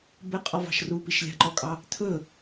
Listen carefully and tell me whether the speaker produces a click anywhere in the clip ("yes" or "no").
yes